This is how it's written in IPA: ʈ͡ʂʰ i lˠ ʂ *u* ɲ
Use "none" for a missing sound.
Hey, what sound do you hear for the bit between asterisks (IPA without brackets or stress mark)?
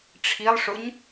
ʊ